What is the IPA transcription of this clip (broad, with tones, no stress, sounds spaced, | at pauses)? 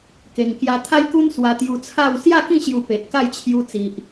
k e˧ ŋ k j a˧ t̪ʰ a˦ j k u˦ n s w a˧ t̪ j u˧ t͡sʰ a˥˧ w s j a˥˧ k ĩ˥˧ ɕ j u˧ p e˨ t̚ k a˥˧ j t͡ɕʰ j u˧ t͡s i˨ ʔ